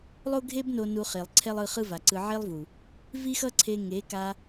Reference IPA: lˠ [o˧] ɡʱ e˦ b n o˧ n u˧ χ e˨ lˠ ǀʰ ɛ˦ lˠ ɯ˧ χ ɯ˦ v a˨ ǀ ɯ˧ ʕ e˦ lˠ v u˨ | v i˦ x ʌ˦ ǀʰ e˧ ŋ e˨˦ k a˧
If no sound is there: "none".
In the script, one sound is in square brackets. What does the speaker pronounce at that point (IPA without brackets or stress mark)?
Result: o˦